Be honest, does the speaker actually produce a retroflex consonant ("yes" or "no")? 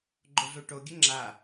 yes